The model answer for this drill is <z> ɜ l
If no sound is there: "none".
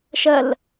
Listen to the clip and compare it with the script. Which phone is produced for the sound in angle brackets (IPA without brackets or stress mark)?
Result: ʃ